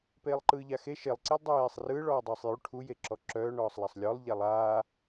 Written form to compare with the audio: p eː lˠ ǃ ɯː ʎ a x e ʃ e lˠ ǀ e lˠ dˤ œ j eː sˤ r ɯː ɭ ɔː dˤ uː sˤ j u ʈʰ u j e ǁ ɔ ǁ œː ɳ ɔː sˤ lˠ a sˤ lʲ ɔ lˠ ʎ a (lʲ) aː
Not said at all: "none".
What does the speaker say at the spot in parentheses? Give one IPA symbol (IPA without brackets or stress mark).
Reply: lˠ